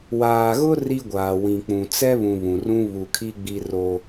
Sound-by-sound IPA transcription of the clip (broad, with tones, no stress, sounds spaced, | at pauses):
w aː˨ ɣ ʊ˦ r i˦ ɡʷ aː˨ w ĩ˨ k͡p ũ˨ t͡s ɛ˦ β ũ˨ β ũ˨ r ũ˦ β u˨ kʰ i˦ ɡ͡b i˦ r o˦